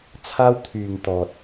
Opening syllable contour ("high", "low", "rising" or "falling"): high